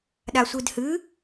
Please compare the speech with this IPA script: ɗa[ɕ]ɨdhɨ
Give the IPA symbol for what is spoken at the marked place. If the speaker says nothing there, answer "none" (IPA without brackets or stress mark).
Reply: sʷ